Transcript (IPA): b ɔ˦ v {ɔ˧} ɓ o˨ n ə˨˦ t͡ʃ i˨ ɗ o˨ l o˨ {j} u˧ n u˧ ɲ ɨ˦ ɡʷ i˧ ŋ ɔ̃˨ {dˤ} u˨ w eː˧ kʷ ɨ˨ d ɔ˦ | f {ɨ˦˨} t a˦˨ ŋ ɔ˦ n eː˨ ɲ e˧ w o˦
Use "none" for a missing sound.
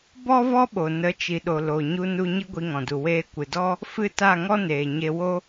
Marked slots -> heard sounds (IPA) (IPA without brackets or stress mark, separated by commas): ɔ˦, ɲ, d, ɨ˦˨